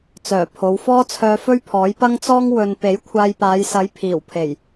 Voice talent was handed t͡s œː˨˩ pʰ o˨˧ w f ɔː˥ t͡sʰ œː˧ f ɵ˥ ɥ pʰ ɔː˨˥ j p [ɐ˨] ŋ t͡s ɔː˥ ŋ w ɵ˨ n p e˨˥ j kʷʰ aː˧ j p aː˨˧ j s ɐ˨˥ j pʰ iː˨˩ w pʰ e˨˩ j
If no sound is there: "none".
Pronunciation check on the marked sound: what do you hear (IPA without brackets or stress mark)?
ɐ˥